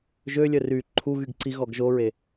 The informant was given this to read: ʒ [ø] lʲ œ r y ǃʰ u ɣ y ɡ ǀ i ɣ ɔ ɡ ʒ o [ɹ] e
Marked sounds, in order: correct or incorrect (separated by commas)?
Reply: correct, correct